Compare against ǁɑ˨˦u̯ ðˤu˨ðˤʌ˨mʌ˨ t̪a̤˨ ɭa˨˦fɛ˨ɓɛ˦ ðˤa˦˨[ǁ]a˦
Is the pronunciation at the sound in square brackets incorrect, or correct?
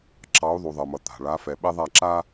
correct